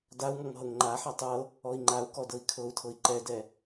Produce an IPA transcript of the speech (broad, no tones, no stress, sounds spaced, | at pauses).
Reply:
d a u̯ ŋ ɔ ŋ ɦ ɤ ŋ ŋ͡ǃ a ħ a tˤ ɤ | ɔ i̯ ŋ͡ǃ a u̯ k ɔ d ɤ i̯ kʰ ɤ u̯ tʰ ɤ i̯ ǃ ɛ d ɛ